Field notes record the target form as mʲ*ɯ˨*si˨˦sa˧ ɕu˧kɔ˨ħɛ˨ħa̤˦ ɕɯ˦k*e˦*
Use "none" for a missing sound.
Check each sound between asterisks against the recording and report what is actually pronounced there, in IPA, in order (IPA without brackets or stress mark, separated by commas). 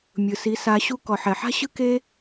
ɯ˨, e˦